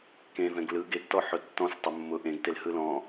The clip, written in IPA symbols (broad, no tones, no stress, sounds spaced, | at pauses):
k ẽ v ɛ̃ ɡ l ɯ ɡ e ɡ t ɔ ħ ʊ tː ɔ̃ s tˤ ʊ mː ʊ ʔ ẽ ɡ t e l h ɯ l ɔ̃